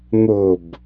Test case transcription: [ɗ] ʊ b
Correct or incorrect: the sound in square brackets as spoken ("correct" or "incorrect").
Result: incorrect